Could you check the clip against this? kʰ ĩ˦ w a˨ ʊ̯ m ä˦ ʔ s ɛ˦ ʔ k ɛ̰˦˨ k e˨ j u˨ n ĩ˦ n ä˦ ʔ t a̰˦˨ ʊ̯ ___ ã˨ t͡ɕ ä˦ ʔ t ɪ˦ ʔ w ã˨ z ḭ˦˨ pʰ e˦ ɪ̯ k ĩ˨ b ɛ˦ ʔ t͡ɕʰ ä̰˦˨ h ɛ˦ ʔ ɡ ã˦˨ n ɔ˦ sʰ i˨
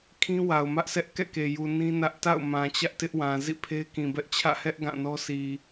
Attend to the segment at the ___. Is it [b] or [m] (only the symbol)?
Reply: m